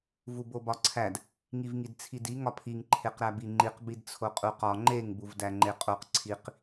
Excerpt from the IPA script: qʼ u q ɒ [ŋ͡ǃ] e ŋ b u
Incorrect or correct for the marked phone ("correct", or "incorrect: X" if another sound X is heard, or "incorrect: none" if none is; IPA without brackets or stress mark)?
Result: correct